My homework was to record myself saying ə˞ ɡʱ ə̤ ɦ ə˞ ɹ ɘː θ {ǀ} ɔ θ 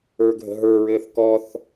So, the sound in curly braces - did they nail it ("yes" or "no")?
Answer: no